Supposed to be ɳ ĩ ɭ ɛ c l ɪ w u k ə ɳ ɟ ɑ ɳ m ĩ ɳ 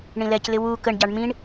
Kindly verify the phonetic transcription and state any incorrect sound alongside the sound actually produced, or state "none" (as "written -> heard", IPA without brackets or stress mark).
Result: ɭ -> l